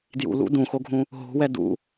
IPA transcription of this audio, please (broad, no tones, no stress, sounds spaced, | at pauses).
d j ṵ l ṵ d ũ x o ɡʱ ũ | ɦ o̤ w ɛ d ṵ